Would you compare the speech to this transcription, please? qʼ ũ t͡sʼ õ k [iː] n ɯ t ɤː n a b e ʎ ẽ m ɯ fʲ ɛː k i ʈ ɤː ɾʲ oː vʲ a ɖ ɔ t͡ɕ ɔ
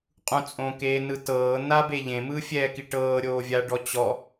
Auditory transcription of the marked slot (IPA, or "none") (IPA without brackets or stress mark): eː